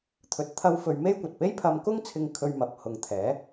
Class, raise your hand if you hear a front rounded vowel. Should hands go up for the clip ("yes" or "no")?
no